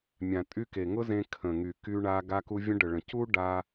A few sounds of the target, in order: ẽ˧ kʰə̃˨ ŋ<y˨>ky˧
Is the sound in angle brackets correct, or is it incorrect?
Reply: correct